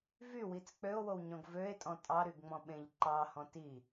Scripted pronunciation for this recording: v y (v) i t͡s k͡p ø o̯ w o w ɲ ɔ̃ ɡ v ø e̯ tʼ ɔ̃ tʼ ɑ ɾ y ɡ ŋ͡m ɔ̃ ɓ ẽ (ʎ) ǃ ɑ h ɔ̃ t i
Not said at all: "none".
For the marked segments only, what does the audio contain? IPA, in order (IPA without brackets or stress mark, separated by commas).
w, ʎ